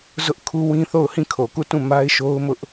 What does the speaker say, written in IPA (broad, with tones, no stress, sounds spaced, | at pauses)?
z ʊ˦ ʔ kʰ u˦ w ĩ˦ θ o˦˨ ʊ̯ h ĩ˦˨ kʰ o˨ k u˦˨ t ũ˦˨ m a˦ ɪ̯ ʃ o˦ ʊ̯ m ʊ˦ ʔ